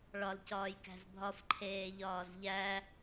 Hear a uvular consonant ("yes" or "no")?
no